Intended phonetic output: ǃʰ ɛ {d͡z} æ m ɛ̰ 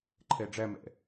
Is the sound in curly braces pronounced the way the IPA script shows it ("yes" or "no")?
no